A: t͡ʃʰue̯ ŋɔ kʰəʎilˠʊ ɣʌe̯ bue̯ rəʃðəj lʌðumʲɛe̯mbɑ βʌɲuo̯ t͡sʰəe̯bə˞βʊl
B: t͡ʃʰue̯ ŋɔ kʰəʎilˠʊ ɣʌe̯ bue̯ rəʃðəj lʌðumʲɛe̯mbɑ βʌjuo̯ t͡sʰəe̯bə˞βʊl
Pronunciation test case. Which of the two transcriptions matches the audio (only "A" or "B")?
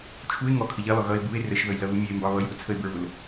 B